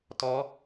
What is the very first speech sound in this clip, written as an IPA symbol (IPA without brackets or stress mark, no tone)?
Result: t